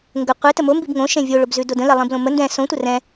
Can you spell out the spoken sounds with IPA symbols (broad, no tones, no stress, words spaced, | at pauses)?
ŋɡə qʷetə mombib ŋõʃẽ vʲoɭobzʉdo də̃lɛlˠĩblõ mə ndɛ̃ sõtʷə rɛ̃